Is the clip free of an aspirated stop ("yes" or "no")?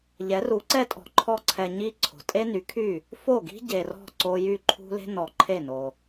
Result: no